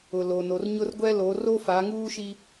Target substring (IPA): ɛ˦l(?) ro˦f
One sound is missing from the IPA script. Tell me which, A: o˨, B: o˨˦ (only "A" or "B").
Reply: B